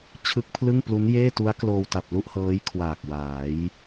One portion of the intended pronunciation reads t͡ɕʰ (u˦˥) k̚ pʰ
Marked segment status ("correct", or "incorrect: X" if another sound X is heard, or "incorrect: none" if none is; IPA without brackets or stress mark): incorrect: ɯ˦˥